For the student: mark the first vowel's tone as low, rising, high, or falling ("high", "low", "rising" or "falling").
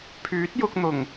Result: rising